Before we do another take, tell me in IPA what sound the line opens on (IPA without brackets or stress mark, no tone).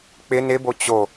k͡p